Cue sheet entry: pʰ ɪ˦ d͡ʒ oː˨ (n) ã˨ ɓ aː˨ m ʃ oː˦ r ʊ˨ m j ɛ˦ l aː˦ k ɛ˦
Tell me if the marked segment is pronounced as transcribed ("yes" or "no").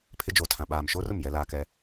no